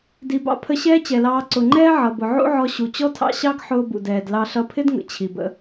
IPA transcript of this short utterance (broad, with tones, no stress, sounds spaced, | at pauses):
d i˩ b ɑ̰˧ pʰ ə˧ ɕ ɛː˥ t͡ɕ ɛ˩ l ɑː˧ ǀ ʊ˩ ŋ͡ǃ ɛː˥ ʕ ʌ˩ b ʊ˩ ʕ ṵ˥ ʕ ɔ˧ ɕ u˩ t͡ɕ ɔ˥ tʰ ɑ̰˥ ɕ ɑ˥ ɡ ħ ʊː˧ b ṵ˩ d ɛː˩ d l ɑ˧ ɬ ʌ˧ pʰ ɪ˥ d ŋ ə̰˩ t͡ɕʰ i˩ b ə̰˧